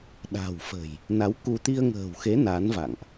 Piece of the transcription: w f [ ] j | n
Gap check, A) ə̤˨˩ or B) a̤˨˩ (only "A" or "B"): A